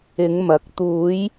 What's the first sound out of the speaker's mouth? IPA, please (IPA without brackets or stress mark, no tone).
ɪ